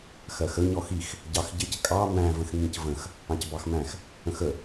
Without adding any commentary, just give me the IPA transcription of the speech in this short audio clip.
x ɜ x ə ɲ ɔ x i x | ɟ ɑ x ɟ ɪ c kʼ ɑ m æ̃ v ə̃ x ŋ ĩ c v ə̃ x | ɑ̃ c b ɑ x m æ̃ x | ə̃ x ə

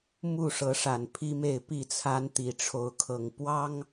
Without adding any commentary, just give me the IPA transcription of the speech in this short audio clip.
m u˥˨ ʂ ɤ˨˦ ʂ a˨˩ n pʰ i˦ m e˥˨ ɪ̯ p i˥˨ t͡sʰ a˦ n t̪ i˨˩ ʈ͡ʂʰ o˨˦ ʊ̯ kʰ ɤ˨˩ ŋ p w ɑ˦ ŋ

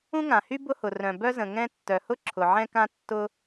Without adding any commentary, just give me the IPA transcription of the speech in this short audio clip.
ũ˥ ŋ ã˩ h y˥ b ʊ˥ h ʊ˩ r œ̃˩ b œ˥ z ə̃˩ ŋ ɛ̃˥ tː œ˩ h ʊ˥ ǁʰ ʊ˩ ʕ ɛ̃˥ k ã˥ tː ʊ˥

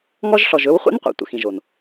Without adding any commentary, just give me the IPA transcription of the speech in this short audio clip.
ŋ ɔ˦ ʒ ɬ ɔ˨ ʒ ɵ˦ w χʷ ɛ̰˦ n qʷ ɛ̰˨ tʷ ə̰˨ x ĩ˨ ʒ o˨ n

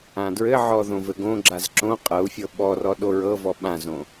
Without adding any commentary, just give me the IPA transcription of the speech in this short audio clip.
ã d ɹ ɘ ʕ ɔ ð õ v ɘ ɡ õ ɡ͡ǁ a z ǁ õ qʼ ɤ u̯ fʲ ɤ ɓ ɔ r ɔ ɗ o ɹ ɤ v ɔ ɓ ã z õ

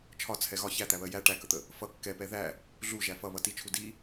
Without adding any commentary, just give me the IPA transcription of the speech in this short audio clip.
t͡ʃʰ ɒ t͡sʰ ɛ ɣ ɒ ç æ t̪ æ β ɜ j æ ʈ æ k ə t̪ ə | f ʌ kː ɛ p ɛ ð æ | ɮ u ʒ æ f ʌ β ʌ t i t͡ʃʰ u d i

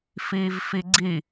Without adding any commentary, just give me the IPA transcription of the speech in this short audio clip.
f iː v f i ɡ͡ǀ i

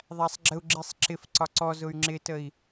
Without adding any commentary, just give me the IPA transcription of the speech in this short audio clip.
ðˤ æ sˤ ɡ͡ǁ ə u̯ ɡ͡ǁ i sˤ ǁ ɪ f ǀ ɒ ǀ ɔ z ʊ y̯ ŋ͡ǁ ɪ t ə i̯

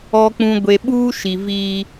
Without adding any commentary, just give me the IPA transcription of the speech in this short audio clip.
ɔ˨ k͡p ũ˨ ɡʷ e˨ ɓ uː˦ ʃ i˨ v iː˦

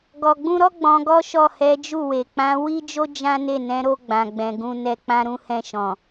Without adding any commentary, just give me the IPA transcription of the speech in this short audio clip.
ɡ ɔ˨ ɡ͡b ũ˧ ɾ ɔ˦ ɡ͡b ɔ̃˧ ɡ ɔ˦ ʃ ɔ˦˨ h ɛ˨˦ d͡ʒ u˦˨ w e˨ k͡p ã˨˦ w i˦ d͡ʒ o˦ d͡ʒ ã˦ n e˦˨ n ɛ̃˨˦ ɾ o˧ ɡ͡b ã˨ ɡ͡b ɛ̃˨ ɡ ũ˧ n ɛ˧ k͡p ã˧ ɾ ũ˧ h ɛ̃˧ ʃ ɔ̃˨

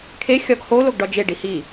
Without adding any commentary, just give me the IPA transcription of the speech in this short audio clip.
kʰ e xʲ ɒ ɡ h o l o ɡ ɖ ɒ d͡ʒ e ɖ i h i

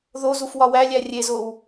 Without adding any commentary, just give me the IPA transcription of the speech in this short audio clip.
ð o z u f w ɒ w æ lʲ æ rʲ e z o w

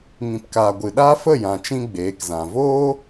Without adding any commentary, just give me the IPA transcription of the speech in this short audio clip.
ŋ ĩ˨ p k aː˨ ɡʷ ɨ˨ ɗ aː˦ f ə˦˨ j ã˨ t͡ʃ ĩ˧ ɡ͡b eː˨˦ k z ã˨ v oː˦

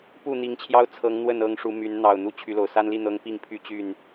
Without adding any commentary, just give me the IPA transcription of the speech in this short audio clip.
p u˥˨ n̪ i˨˦ ŋ t͡ɕʰ j ɑ˦ ʊ̯ t͡sʰ ɤ˨˦ ŋ n̪ w ə˥˨ n ɤ˥˨ ŋ ʂ u˨˦ m y˨˦ n n̪ ɑ˨˩ ʊ̯ n̪ u˨˦ t͡ɕʰ y˨˦ l o˨˩ ʊ̯ s a˦ n l i˥˨ n̪ ɤ˦ ŋ p i˥˨ ŋ pʰ y˥˨ t͡ɕ y˥˨ n

